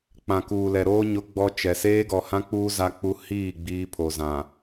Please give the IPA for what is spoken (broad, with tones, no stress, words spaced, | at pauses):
k͡pã˨kuː˨lɛ˨ɾoː˦ ɲʊ˦ɡ͡bɔ˦t͡ʃɛ˨ seː˦ɡɔ˨hã˦k͡puː˦ za˦k͡pu˦ hiː˦˨ ɡ͡biː˦pʰo˨zã˨